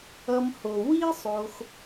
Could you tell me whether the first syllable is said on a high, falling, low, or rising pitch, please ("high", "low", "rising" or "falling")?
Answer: low